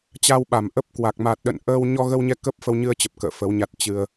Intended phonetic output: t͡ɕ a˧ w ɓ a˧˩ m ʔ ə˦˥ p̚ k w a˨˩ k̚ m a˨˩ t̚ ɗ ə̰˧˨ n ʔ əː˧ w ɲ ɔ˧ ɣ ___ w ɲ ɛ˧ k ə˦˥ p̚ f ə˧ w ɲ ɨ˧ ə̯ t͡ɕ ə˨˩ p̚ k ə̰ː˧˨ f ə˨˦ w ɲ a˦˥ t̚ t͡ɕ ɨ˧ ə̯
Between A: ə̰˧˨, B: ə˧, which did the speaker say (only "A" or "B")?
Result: B